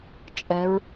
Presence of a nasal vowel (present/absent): absent